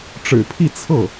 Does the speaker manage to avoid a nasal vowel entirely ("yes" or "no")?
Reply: yes